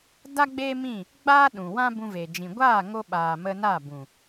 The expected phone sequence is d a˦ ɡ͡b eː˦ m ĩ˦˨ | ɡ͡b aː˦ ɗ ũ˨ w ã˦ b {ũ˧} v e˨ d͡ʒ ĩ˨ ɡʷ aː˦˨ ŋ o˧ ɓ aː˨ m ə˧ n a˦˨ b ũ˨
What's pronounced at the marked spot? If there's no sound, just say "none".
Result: ũ˧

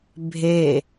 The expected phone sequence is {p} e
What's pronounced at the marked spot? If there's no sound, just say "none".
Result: bʱ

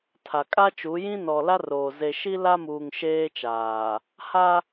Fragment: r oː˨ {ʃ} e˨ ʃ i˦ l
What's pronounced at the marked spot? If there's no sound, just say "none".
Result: z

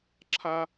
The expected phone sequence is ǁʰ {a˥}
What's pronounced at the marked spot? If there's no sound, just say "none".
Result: a˥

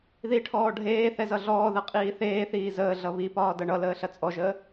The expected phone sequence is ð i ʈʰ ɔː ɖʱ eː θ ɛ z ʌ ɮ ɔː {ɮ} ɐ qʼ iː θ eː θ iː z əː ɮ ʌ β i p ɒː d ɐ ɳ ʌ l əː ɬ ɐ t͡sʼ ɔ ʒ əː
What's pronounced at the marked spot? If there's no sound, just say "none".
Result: ð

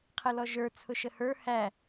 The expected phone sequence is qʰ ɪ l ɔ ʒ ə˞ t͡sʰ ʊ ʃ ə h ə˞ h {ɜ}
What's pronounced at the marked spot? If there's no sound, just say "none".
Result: æ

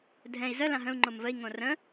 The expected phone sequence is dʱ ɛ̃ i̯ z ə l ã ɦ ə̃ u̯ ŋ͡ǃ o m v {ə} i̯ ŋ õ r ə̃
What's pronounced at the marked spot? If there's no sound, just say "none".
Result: ə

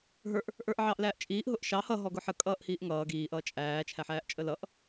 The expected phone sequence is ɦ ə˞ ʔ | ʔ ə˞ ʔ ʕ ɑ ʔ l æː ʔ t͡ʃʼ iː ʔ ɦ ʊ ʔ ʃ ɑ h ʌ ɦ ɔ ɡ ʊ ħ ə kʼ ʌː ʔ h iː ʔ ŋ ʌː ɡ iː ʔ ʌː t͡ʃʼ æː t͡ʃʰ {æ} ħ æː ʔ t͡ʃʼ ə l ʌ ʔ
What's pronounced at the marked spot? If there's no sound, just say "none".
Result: æ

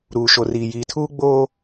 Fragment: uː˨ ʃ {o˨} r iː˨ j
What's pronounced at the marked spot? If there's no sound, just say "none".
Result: o˨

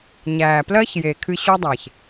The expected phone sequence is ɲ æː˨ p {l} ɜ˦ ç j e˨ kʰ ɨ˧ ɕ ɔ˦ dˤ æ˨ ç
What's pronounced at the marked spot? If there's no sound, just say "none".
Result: l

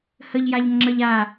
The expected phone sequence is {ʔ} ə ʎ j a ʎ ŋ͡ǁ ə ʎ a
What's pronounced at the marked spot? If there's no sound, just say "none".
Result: h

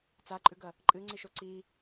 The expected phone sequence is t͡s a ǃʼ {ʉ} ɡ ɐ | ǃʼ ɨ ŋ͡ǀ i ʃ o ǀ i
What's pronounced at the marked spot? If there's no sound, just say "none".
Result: ʉ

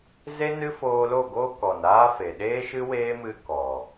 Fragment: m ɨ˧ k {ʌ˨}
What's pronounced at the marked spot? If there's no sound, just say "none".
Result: ɔ˨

